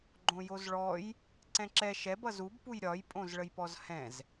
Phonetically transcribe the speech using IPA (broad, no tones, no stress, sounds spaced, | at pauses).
ɡ͡ǃ õ j o z ɭ ɔ j | ǀ ɛ̃ ǁ ɛ ʃ ɛ b ʌ z u b p u j ɾʲ ɒ j pʼ õ z ɭ ə j p ɔ z h ɛ̃ z